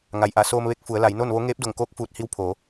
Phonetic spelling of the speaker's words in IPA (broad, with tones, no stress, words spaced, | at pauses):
ŋa˩jʔa˧˩soː˧m ʋe˧k̚fu˩˧ə̯la˩˧j no˥˨nʋo˧˥ ŋeː˧˥p̚do˧˩ŋkoː˧˥k̚ fuː˧t̚hi˧˥wpʰoː˩˧